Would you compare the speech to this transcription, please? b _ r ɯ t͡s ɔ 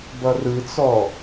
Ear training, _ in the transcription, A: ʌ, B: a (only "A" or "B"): A